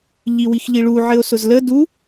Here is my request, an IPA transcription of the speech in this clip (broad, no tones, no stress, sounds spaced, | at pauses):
ʎ i w i x ʎ i ɭ u ʕ ɘ o̯ s ʊ z l ə d u